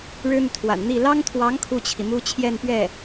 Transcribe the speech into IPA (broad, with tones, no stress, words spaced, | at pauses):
ɻɻ̩˥n̪y˨t̪ʰwa̰˨˩nn̪i˥˩ lɑ˥ŋt̪ʰwɑ˧˥ŋ kʰu˥˩t͡ɕʰi˩mu˥ t͡ɕʰjɛ˥˧npɥɛ˥˩